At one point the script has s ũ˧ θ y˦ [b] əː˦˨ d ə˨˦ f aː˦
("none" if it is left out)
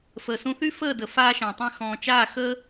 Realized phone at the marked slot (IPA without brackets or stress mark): f